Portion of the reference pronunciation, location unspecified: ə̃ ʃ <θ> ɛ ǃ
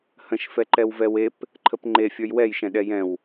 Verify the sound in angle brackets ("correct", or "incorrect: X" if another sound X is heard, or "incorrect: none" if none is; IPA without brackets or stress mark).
incorrect: f